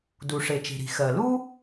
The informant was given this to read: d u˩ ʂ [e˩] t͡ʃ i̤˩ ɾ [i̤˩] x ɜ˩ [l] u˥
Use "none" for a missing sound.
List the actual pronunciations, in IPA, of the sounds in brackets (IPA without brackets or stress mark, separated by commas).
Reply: e˩, i̤˩, l